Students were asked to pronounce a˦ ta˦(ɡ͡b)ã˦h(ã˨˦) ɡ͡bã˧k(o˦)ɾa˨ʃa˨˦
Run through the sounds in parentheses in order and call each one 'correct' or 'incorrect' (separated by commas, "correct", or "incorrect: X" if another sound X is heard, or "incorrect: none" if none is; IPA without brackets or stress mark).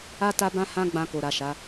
incorrect: b, incorrect: ã˦, incorrect: o˨